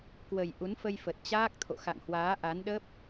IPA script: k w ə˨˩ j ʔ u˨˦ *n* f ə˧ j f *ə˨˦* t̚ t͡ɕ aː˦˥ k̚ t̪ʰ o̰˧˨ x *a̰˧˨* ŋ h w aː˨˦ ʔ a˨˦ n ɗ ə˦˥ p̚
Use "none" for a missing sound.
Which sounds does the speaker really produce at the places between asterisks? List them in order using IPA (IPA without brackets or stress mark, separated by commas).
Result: n, ə˨˩, a̰˧˨